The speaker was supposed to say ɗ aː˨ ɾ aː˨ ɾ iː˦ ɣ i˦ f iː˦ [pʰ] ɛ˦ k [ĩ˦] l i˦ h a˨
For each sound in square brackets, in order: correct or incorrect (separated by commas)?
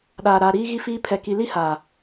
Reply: correct, incorrect